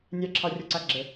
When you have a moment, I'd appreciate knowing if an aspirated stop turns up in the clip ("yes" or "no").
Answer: yes